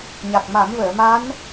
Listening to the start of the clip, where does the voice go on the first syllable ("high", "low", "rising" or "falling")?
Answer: low